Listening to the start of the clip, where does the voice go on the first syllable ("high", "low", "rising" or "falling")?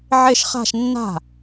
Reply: falling